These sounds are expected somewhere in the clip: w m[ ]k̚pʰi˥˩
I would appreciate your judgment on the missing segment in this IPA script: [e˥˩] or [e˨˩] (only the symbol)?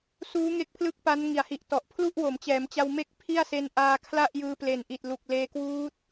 e˥˩